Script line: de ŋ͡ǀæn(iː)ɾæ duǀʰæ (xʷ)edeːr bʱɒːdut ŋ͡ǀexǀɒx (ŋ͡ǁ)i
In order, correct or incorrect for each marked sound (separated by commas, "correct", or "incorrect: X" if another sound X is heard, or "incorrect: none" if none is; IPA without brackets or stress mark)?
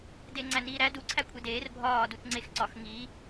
correct, incorrect: kʷʰ, incorrect: ŋ